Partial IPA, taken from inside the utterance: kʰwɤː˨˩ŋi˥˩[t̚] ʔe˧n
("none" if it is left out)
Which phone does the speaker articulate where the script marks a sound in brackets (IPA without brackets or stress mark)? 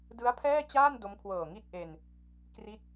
t̚